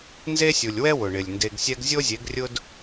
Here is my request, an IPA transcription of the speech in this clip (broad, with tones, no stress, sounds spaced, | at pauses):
n z e˦ sʲ u˨ lʲ w ɛ˦ w ʊ˨ ɳ ɪ˨ lʲ n d e˧ ɡ sʲ ɛ˦ ɡ zʲ o˦ zʲ e˨˦ ɡ rʲ ʊ˦ d